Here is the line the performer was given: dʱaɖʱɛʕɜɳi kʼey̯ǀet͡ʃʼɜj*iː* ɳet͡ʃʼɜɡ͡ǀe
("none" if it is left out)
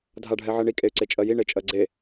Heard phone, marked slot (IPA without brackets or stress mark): i